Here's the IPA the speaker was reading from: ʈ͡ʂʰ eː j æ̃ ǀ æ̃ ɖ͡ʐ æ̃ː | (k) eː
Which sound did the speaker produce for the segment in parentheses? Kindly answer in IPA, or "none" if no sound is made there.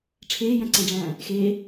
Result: x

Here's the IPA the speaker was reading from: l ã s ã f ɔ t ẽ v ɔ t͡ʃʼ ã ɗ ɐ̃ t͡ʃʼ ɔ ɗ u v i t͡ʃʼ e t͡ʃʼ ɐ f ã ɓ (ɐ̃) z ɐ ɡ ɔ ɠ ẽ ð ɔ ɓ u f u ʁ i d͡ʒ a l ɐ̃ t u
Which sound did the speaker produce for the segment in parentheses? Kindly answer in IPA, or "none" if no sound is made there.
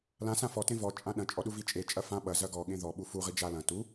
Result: ɐ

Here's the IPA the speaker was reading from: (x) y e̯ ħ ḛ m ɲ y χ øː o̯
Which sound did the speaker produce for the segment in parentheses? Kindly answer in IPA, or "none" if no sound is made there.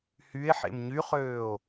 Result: h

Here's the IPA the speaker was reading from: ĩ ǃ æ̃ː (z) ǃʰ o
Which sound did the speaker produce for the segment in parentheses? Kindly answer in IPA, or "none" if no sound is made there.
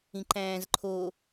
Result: z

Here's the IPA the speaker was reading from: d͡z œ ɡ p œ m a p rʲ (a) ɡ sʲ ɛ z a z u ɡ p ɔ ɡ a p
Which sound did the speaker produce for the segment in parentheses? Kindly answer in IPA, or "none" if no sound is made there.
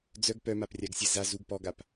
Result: a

